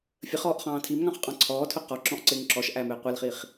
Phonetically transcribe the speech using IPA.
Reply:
fʲ ə χ ɔː ʔ χ ɑ̃ː tʰ i m ŋ ɑ̃ χ qʼ ɑ̃ ǀʰ ɔː tʰ ʊ q ɔ ǁ ɔ̃ ʔ ǀ ɪː ŋ ǁ ɔ ʃ ʔ æ m ɪː qʷ ɛ l χ i χ

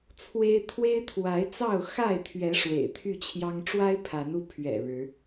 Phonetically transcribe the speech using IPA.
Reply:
t͡sʰ w e˦ ɪ̯ t̪ʰ w e˦ ɪ̯ t̪ʰ w a˨˦ ɪ̯ t͡s ɑ˥˨ ʊ̯ x a˥˨ ɪ̯ t̪ʰ ɥ ɛ˨˦ ʂ w ḛ˨˩ ɪ̯ t̪ʰ y˥˨ t͡ɕʰ j ɑ˦ ŋ ʈ͡ʂ w a˦ ɪ̯ pʰ a˨˦ n u˧ pʰ ɥ ɛ̰˨˩ ɻ ɻ̩˨˦

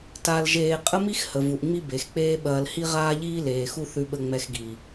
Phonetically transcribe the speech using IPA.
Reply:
t a˧ l ʒ eː˧ qʼ ə˥ m i˥ x h ə˩ v u˩ ʔ ŋ͡m i˥ b e˩ x k͡p eː˥ ɓ ɐː˧ l h i˥ ʁ aː˥ ʎ iː˥ l eː˩ x u˥ θ ʉ˧ ɓ ə˧ ŋ͡m ɛ˧ x ɡ i˩

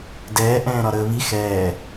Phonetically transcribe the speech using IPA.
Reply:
d ɛː ʔ ɛ̃ː ɾ ɒ ɾ əː β i x ɛː

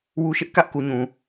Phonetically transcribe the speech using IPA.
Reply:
w u˦ ʃ ɪ˦ ʔ k ä˦ ʔ k u˨ ɲ ũ˨

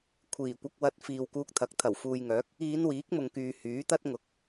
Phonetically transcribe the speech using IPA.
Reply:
kʷʰ iː˨˩ kʷ ɐ˧ k̚ w ɐ˨ t̚ f iː˨ w k uː˧ k̚ t̪ʰ ɐ˨˥ k̚ t̪ʰ ɐ˨˩ w f uː˨ j ŋ œː˨˥ k̚ | iː˨˧ n w iː˨˥ k̚ m ʊ˨ ŋ k yː˨ h yː˨˥ t̪ ɐ˥ t̚ ŋ ʊ˨˥ k̚

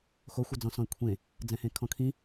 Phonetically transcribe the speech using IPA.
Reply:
x o xʷ ə d͡z ɔ̃ s ɔ̃ e̯ kʷʰ ẽ | d͡z ɛ̃ h ẽ kʰ ɔ̃ kʰ ĩ

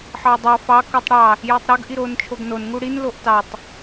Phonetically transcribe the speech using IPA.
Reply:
ħ ɑ dˤ ɑ f ɑ k u tˤ ɽ ɑ | j o tˤ ɾ o ɡ ʔ i ɾ o n t͡ʃʰ o ɡ n o n ŋ u ɽ i n l o ʔ t ɑ tˤ

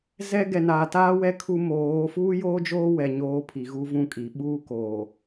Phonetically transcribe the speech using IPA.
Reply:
z ɛ˦ ɡ ɛ˨ n aː˨ t aː˦ w ɛ˦ kʰ u˦ m oː˨˦ f uː˦ j oː˦ d͡ʒ oː˦ w ɛ˨ ɲ oː˨ pʰ i˨ ɣ u˦ v ũ˦˨ kʼ i˨ ɓ uː˦ k oː˨

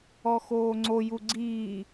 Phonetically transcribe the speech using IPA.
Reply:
ɔ x oː ŋ͡ǀ o j u ɡ͡ǀ iː

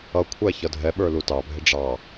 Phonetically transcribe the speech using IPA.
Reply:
ʌ kʷʰ æ ç ʌ dʱ ɛ ɓ ə˞ l u t ɑ bʱ ɪ ɖ͡ʐ ɑ

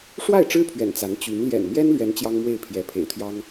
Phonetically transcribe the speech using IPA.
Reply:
ʂ w a˥˩ ɪ̯ ʈ͡ʂ ɻ̩˥ pʰ ɥ ɛ̰˨˩ n t͡s a˧˥ n t͡ɕ y˧˥ n l j ɛ̰˨˩ n m j ɛ˥ n l ɥ ɛ˧˥ n t͡ɕ j ɑ˥ ŋ m w e˥˩ ɪ̯ pʰ j ɛ˧˥ pʰ ḛ˨˩ ɪ̯ t̪ʰ j ɑ˥ ŋ

